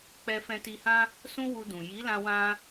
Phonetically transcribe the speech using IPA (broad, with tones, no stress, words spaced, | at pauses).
k͡pɛ˧fɛ̃˧ti˧hã˦ | sũ˦wu˧dũ˨ ji˨˦lã˧ wã˧